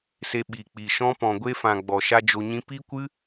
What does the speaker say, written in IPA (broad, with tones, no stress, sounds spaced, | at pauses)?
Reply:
s e˧ ɓ i˨ k͡p i˨ ʃ ɔ̃˦ p ɔ̃˨ ɡʷ e˦ f ã˨ ɡ͡b ɔ˨ ʃ a˦ d͡ʒ o˧ ɲ ĩ˦ p i˦ kʷ ɨ˦